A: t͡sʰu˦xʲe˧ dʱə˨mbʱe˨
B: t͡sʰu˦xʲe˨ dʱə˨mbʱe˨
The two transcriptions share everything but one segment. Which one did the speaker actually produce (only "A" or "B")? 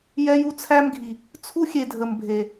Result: B